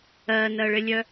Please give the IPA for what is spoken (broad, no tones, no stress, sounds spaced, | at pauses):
ɜ n ɜ ɭ ɪ lʲ œ